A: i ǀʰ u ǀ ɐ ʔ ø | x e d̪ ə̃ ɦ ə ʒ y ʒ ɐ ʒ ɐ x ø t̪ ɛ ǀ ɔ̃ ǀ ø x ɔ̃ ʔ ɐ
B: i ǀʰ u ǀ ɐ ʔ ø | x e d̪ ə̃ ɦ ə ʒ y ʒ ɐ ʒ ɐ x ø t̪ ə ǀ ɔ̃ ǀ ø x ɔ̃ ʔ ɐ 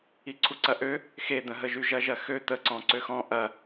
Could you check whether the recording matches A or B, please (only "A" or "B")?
B